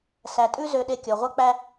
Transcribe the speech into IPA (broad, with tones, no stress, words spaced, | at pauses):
sæ˧ tʼʉ˦zø˧ɗe˧ kʲɔ˨ʁʷœ˦k͡pæ˦